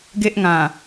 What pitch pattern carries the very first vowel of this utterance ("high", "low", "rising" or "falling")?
high